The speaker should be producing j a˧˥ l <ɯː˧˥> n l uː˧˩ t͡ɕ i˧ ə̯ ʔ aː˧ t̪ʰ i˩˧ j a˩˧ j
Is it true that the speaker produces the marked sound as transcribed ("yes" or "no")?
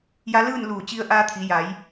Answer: no